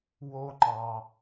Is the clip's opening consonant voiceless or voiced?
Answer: voiced